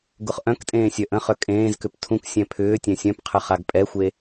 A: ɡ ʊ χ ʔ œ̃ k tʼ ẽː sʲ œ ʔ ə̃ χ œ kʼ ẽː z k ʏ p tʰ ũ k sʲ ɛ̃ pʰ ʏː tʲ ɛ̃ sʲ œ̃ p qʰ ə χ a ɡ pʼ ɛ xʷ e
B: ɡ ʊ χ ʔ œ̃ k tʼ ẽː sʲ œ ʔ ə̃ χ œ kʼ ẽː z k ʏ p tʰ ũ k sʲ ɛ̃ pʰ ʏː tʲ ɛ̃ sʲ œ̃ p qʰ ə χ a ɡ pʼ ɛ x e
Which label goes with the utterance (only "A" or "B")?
A